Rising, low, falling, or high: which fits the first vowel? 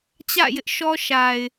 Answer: falling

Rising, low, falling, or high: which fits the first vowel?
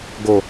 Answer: low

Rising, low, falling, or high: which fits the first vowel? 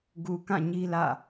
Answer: low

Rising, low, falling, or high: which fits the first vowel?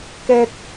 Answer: high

